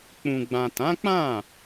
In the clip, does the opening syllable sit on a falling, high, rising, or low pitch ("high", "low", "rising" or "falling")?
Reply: low